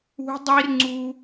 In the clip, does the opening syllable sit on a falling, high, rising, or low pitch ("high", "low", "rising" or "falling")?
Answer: high